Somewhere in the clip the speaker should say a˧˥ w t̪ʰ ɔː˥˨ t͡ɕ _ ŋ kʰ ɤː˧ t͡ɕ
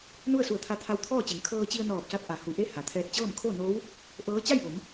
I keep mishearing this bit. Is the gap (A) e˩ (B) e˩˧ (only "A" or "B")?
B